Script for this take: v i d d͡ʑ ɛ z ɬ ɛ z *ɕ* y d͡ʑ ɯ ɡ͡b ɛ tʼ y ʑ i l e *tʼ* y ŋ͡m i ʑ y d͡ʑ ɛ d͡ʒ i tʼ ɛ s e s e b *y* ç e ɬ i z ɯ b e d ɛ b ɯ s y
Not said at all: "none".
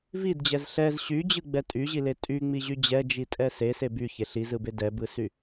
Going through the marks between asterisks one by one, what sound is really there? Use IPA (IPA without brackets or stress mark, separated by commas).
ɕ, tʼ, y